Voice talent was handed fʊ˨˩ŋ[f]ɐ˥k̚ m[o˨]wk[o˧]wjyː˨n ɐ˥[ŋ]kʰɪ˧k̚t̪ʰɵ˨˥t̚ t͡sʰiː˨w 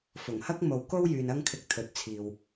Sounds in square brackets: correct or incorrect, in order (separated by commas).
incorrect, correct, incorrect, correct